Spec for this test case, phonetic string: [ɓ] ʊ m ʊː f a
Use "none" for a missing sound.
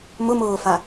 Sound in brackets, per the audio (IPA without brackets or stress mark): m